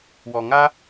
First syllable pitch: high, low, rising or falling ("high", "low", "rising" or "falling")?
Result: low